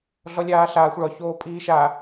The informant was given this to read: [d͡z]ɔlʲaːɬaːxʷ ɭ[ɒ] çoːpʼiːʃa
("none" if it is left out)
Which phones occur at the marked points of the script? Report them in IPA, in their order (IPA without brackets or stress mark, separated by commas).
ɮ, ɒ